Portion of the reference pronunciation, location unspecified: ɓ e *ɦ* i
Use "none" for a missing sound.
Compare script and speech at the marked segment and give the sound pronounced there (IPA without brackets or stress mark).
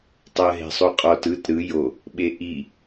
ʔ